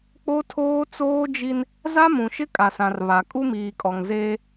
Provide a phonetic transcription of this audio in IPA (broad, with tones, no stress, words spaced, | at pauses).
k͡po˦tʰoː˦t͡soː˦d͡ʒi˦n | za˦mũ˨ʃɪ˦ kʼa˨sã˨r βa˨ kʼu˦miː˨kʼɔ˨ŋzeː˦